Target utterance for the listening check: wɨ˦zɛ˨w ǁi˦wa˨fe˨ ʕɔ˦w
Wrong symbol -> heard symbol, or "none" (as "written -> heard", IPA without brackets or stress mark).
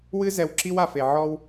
none